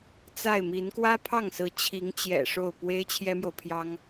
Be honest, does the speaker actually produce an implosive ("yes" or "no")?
no